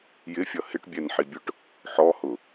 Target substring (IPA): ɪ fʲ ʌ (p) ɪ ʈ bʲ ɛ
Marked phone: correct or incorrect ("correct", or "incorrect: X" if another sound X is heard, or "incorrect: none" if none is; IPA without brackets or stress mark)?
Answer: incorrect: h